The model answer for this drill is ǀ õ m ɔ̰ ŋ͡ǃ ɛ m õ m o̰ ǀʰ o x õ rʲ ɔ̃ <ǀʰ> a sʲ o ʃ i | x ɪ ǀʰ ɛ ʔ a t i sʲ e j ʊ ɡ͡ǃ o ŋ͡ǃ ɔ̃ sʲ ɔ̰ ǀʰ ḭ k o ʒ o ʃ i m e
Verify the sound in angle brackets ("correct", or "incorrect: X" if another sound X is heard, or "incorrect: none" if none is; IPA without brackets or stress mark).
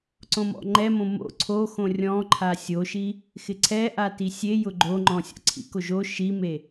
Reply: incorrect: ǃʰ